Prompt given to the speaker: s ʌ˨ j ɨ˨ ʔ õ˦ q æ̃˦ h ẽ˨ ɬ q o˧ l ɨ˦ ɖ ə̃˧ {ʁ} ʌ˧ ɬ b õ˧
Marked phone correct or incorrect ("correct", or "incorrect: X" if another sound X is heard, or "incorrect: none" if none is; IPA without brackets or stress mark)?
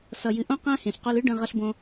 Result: correct